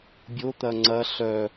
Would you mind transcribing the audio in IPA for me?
bʲot̪ɐ ŋ͡ǀɐ ɬœ

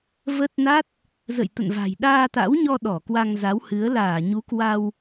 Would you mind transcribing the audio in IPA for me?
və˦˥t̚ na˦˥t̚ | zə̰˧˨jt̪ə̰˧˨nva̤˨˩j ɗaː˧t̪a̰˧˥wɲɔ˧ ɗɔ˧˩kwa˧ŋza˨˦whɨ˨˦ə̯ laː˧˩ɲu˨˦kwa˧w

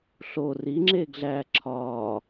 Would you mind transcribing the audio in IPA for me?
ɬo ri ŋ͡ǁeːɡɮæːǁʰɒː

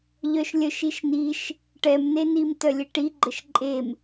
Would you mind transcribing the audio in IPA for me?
ʎœʃlʲœʃiʃniʃ | ʈɛmnenim tœlʲeʈiɡ͡ǃəʃ ǃʼem

